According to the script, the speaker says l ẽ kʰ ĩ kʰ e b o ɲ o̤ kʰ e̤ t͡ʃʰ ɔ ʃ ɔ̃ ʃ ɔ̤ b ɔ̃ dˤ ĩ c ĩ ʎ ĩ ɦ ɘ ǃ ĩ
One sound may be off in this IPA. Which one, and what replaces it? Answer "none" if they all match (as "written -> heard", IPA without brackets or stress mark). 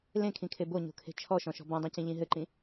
none